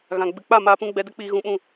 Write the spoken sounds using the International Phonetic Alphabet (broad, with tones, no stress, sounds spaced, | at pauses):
ɣ ã˨ ɡ͡b ɨ˨ k͡p a˦˨ m aː˧ p ũ˧ ɡ͡b ɛ˧ d ə˦ k͡p iː˧ ɣ ũ˧ ɓ ũ˦˨